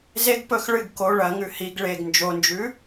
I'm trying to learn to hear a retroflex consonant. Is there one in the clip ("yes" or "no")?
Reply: yes